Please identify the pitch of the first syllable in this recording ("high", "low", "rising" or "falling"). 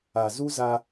low